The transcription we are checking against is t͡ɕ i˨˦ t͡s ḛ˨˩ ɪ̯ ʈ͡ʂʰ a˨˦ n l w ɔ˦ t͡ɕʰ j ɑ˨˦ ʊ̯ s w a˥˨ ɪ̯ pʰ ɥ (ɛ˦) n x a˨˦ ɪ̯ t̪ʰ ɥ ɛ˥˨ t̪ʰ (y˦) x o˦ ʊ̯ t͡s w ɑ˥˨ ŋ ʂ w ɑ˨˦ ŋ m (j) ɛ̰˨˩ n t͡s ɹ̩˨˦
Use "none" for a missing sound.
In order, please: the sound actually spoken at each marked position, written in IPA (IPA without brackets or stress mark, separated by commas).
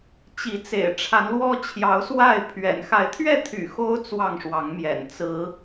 ɛ̰˨˩, y̰˨˩, j